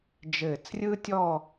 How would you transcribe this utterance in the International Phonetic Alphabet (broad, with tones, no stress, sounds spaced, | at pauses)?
d͡ʒ ɘː˧˩ t͡s rʲ ɯː˥ tʲ ɔ˥˧